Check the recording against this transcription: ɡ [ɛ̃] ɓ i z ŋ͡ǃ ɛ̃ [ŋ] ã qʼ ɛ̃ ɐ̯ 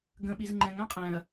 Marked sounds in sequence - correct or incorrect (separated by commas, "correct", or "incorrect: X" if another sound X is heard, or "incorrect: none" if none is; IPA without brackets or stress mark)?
incorrect: ə̃, correct